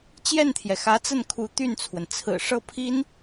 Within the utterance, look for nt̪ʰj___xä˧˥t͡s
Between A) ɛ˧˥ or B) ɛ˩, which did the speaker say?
B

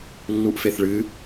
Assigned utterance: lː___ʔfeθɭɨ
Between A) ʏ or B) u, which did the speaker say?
B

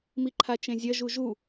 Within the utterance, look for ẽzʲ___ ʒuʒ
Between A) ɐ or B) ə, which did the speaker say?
A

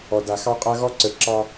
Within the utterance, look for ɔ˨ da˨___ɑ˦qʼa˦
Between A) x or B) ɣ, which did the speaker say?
A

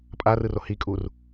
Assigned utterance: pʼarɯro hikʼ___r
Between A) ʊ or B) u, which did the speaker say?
B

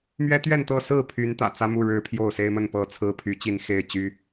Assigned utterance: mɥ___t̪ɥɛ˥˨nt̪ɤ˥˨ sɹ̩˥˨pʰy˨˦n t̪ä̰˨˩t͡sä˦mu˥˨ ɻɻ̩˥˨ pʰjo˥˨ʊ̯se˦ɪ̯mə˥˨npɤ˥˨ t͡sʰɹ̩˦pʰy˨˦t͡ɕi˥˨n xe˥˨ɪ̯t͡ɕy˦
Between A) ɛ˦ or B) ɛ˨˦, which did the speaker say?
A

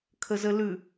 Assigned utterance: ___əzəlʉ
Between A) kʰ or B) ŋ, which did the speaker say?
A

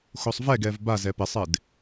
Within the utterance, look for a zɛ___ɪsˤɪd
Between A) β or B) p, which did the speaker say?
B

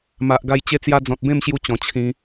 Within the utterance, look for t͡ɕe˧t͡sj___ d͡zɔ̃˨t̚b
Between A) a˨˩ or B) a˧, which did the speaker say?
B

